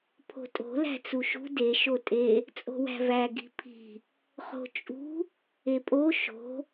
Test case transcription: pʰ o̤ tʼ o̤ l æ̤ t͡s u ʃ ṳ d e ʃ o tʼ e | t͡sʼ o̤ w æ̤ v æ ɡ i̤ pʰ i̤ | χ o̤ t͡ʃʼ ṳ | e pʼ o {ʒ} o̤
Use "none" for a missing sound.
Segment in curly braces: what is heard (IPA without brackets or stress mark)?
ʃ